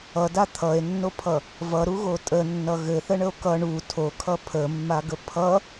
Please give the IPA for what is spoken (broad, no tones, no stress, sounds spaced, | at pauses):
ʌ d a t̪ʰ ʌ e̯ nː o pʰ ʌ | v ʌ ɾ u ɣ o tʼ ə nː ʌ ɣ ɘ θ ə ɳ ə o̯ k ʌ ɳ u tʰ o kʰ ʌ pʰ ə mː a ɡ ə pʰ ʌ